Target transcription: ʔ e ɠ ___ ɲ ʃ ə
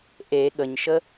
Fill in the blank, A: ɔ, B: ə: B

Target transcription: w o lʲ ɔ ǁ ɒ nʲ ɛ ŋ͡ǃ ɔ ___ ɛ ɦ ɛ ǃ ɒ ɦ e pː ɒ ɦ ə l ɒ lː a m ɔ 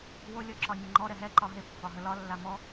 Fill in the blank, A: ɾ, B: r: A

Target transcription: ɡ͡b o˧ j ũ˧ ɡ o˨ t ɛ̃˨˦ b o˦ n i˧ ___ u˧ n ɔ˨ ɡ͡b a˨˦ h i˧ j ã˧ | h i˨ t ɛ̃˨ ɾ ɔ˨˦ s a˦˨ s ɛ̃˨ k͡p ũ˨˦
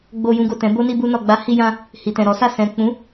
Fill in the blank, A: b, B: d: A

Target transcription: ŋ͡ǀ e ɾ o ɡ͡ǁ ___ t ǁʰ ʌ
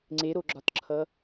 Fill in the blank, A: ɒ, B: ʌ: A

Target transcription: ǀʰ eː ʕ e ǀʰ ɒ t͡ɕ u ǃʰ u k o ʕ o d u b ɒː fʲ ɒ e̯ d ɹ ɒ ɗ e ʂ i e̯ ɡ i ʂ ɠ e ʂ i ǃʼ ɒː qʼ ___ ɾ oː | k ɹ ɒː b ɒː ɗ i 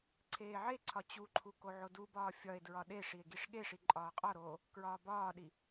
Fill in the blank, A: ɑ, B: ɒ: B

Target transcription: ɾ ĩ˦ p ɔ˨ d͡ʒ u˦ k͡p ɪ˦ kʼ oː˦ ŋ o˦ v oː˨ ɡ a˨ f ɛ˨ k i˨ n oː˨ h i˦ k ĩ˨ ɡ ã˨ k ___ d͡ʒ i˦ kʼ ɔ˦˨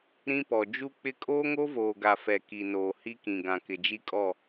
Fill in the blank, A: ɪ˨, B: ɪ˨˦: A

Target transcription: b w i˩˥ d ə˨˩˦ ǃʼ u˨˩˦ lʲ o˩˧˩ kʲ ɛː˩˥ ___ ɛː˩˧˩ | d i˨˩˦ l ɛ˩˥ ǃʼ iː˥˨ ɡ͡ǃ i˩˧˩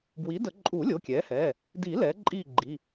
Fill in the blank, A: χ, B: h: B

